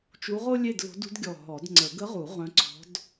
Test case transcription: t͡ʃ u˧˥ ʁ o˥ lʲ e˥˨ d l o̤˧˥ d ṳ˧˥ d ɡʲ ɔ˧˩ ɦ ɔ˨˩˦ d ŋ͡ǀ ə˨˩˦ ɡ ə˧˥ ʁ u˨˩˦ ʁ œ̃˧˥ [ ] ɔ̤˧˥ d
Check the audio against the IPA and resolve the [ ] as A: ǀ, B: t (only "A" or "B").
A